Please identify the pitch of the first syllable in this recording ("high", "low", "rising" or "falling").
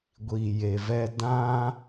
low